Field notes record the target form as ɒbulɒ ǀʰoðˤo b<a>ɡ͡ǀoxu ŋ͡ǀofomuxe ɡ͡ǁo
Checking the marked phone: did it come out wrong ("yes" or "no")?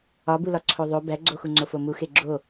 yes